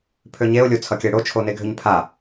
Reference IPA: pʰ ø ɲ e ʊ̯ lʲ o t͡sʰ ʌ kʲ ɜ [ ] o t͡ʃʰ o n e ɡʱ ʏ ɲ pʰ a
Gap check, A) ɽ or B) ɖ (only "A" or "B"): A